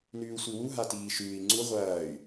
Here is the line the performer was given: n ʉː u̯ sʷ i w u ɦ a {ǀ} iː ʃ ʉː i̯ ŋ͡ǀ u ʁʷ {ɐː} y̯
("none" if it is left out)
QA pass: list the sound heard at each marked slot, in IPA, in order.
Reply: t, ɐː

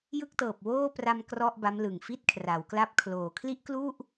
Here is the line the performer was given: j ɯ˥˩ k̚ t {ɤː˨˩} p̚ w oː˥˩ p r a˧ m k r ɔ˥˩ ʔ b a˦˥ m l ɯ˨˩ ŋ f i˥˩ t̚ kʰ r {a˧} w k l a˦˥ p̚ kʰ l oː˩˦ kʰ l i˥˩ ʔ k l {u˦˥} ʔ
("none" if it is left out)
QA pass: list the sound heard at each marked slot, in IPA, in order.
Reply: ɤː˨˩, a˩˦, u˥˩

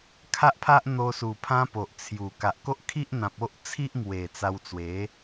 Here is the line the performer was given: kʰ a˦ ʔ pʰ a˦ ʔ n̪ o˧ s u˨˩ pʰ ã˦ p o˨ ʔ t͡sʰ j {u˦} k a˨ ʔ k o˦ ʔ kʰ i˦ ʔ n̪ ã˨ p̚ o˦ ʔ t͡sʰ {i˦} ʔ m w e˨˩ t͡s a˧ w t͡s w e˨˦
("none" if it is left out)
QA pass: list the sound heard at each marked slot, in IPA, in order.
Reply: u˨˩, i˦

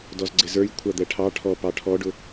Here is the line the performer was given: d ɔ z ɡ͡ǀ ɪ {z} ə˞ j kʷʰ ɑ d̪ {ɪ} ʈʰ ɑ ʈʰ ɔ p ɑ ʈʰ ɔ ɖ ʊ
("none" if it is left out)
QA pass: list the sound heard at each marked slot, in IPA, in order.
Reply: z, ɛ

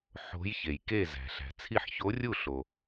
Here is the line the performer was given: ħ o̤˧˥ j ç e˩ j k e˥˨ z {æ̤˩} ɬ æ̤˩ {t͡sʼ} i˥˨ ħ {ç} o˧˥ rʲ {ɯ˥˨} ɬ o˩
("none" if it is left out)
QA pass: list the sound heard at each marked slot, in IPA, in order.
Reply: æ̤˩, t͡sʰ, ç, u˥˨

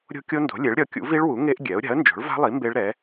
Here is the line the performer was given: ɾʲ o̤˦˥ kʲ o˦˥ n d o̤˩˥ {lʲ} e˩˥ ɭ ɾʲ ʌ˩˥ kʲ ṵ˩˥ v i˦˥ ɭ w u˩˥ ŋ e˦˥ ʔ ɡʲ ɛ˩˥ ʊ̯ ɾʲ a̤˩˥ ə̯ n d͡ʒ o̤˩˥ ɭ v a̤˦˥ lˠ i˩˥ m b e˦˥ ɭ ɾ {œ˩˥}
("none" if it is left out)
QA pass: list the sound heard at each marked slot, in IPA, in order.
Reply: lʲ, ɛ˩˥

